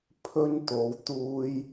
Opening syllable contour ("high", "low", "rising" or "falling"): high